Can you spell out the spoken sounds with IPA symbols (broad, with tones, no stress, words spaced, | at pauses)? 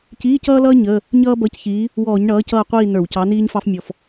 ciː˧˥˧cʌː˥lʌː˥ ɲə˧˥˧ | ɲʌː˥bʌ˧˥˧cçiː˨˥ | wɔː˧˩˧ɲɳʌː˨˥cʌː˦˨qʷiː˦˨ nə˞˧˩˧wcɑ˨˥niː˥ɲfɑ˥f mʲɔ˨˩f